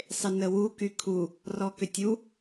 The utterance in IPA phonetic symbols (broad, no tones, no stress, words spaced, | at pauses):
sˤɪnəwu kykʰu | rɔkʏtʲu